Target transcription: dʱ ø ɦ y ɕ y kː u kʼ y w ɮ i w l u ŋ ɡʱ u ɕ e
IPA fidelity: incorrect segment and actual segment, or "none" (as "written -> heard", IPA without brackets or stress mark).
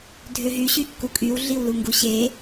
ɡʱ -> ɡ